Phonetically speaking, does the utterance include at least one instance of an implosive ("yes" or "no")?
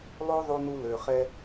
no